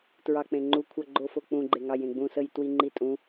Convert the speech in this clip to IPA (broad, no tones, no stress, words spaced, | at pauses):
tɹɑk͡pẽŋ͡ǃu kʷʰʌ ɡ͡ǃofok͡pũ ɡ͡ǃeŋɑjẽɡ͡bũ səjtwiŋ͡ǃitʼũ